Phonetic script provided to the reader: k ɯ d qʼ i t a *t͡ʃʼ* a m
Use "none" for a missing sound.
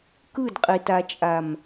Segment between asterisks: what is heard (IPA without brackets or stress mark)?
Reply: t͡ʃʼ